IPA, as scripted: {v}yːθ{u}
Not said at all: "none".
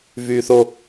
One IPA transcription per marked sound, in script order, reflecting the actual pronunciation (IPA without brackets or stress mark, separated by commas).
v, o